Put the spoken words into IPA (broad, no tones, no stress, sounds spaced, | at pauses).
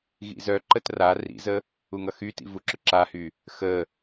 ɣ ḭ z œ ǃ ə t r a r ḭ z ə | u ŋ ʌ x y t ḭ v u ǁ ʊ ǁ a h y | x ə